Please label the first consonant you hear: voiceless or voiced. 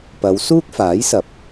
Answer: voiceless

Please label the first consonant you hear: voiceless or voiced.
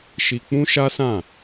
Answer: voiceless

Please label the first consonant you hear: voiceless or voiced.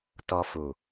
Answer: voiceless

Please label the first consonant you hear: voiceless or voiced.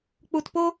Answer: voiceless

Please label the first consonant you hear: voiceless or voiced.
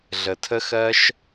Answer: voiced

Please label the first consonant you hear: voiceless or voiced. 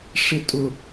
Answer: voiceless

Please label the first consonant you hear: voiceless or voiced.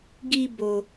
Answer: voiced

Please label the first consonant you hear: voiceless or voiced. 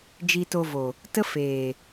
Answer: voiced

